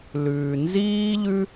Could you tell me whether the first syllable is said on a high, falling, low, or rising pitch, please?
low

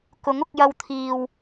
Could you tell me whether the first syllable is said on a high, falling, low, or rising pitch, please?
rising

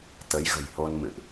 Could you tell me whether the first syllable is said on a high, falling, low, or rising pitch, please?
rising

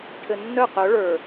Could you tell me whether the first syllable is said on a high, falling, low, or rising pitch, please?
low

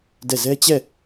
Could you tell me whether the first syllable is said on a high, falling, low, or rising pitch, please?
falling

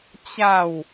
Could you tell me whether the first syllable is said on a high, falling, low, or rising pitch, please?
falling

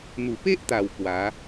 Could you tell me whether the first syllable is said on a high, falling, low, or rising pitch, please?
low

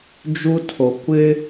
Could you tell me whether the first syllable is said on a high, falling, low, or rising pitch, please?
high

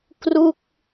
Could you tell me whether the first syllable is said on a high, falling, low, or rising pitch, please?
falling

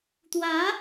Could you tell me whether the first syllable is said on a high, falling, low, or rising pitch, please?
rising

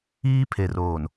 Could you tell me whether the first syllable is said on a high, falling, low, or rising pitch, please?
high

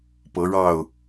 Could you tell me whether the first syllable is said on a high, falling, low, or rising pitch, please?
rising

